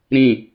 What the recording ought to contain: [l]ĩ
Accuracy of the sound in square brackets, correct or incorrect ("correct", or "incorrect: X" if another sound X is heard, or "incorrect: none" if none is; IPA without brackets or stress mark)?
incorrect: ɾ